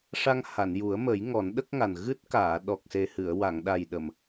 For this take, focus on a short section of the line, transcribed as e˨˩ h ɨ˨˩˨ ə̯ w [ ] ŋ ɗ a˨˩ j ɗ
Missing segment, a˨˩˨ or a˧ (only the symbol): a˨˩˨